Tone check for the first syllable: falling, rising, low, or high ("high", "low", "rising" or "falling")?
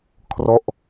falling